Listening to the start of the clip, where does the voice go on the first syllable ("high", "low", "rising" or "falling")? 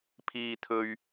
high